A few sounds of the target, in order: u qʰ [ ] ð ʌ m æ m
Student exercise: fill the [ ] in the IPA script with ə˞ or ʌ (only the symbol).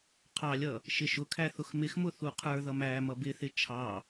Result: ə˞